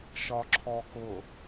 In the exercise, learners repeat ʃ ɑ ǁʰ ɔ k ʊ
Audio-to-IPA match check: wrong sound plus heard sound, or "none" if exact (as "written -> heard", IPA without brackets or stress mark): ɑ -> ɒ